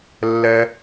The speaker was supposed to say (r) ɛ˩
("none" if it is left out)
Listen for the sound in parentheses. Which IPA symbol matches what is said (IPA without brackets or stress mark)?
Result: lː